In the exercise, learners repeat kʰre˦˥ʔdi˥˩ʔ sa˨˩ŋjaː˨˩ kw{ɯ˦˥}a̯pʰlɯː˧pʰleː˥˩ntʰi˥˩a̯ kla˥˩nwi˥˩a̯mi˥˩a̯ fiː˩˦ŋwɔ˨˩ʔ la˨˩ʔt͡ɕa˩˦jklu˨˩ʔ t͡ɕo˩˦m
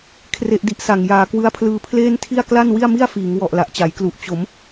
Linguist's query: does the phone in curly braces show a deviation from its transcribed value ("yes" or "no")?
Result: no